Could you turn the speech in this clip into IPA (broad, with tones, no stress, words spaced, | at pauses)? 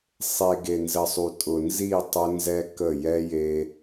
sˤe˨ ɡe˨nzə˨sˤu˨ tʼʊ˨nzi˦˨ tˤʊ˦nzɛ˦kə˦˨ jɛ˦je˦